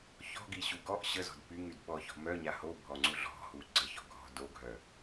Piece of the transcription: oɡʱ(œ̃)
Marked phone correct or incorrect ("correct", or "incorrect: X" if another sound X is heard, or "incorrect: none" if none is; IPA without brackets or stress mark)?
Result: incorrect: œ